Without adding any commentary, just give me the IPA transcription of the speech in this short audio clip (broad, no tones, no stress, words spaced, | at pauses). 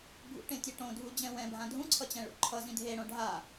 bʱṵʈẽtʲe ʈõdʱud͡ʑɛ̃ wɛ̃bʱã dʱũǀʰʌt͡ɕɛ̃ɭṵ ǃʰʌzĩ dʱeɽõ ɖʱa